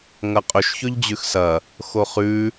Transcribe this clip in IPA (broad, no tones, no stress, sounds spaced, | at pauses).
ŋ ɐ qʼ ɵ ʃ ç ɵ ʎ d͡ʑ ʉ x s ɐ | x o χ ʉ